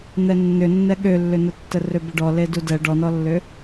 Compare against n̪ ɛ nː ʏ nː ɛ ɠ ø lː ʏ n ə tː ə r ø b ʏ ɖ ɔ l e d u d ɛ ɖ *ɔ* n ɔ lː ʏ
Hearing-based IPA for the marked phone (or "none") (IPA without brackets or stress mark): ɔ